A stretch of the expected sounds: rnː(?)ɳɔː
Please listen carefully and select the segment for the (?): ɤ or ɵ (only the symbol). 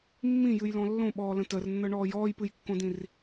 ɤ